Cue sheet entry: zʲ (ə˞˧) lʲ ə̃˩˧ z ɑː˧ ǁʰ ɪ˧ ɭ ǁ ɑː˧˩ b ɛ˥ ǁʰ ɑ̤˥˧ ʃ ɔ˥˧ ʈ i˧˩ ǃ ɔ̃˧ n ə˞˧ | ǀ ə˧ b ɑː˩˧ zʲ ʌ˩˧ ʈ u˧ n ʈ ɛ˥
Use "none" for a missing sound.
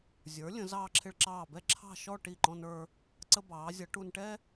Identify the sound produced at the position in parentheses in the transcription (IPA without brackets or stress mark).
ə˞˩˧